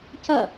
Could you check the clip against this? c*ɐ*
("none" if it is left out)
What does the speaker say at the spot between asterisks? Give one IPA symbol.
ɐ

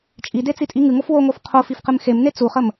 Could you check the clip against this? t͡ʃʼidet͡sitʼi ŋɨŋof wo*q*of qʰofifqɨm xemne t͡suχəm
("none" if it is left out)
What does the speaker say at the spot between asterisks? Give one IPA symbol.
ŋ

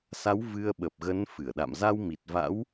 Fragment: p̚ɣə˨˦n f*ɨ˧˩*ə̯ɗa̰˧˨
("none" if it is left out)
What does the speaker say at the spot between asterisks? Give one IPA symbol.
ɨ˧˩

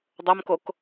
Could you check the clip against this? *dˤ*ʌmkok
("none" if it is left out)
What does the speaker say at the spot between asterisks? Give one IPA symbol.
dˤ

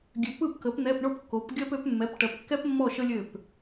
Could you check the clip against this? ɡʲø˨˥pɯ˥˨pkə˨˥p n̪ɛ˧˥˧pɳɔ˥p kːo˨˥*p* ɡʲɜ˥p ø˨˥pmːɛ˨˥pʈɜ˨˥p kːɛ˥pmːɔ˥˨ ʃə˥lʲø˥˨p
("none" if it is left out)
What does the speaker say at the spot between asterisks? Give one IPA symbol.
p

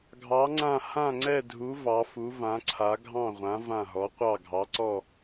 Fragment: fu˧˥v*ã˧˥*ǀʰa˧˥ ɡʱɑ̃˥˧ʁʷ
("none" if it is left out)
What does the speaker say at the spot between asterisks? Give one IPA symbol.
ã˧˥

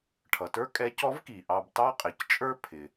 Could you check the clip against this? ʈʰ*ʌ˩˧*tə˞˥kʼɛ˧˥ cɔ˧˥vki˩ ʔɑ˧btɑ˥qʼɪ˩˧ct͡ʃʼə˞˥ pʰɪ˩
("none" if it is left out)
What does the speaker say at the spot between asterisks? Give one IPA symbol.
ʌ˩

